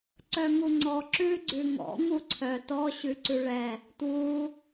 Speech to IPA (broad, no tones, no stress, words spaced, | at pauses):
ǀœŋuŋ͡ǀɔ ǁʉ ɡ͡ǀʉŋɔ̰ ŋuǀʰœ tɔ ɕʉǀʉɭɛ | twu